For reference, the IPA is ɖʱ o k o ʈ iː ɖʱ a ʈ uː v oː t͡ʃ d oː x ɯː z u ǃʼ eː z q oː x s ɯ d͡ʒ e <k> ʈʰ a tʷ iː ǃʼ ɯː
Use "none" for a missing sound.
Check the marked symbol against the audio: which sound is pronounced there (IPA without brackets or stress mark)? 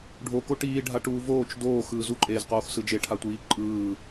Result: none